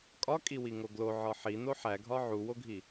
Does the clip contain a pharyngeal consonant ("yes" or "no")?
yes